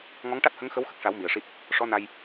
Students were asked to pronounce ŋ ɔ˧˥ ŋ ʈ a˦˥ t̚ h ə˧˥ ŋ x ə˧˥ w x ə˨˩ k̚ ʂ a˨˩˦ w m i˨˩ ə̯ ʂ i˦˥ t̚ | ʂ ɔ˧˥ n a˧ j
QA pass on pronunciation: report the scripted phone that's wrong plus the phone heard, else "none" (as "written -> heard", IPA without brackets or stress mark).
none